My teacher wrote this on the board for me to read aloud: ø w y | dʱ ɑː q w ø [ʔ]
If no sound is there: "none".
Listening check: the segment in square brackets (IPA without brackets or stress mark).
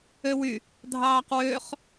χ